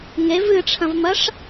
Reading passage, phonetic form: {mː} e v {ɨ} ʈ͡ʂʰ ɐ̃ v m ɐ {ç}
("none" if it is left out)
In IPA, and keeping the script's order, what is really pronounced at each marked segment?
ŋ, ɨ, ʂ

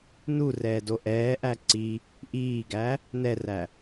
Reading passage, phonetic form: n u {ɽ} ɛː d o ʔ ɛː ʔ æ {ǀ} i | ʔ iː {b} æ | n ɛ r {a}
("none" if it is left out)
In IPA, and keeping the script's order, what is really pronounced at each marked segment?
r, ǀ, ɡ, æ

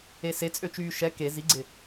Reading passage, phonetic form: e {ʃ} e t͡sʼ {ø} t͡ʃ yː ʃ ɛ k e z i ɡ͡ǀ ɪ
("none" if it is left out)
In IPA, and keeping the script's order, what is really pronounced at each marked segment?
s, ø

